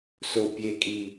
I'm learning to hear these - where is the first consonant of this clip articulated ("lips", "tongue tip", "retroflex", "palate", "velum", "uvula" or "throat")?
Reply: tongue tip